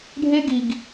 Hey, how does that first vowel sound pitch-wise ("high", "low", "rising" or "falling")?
high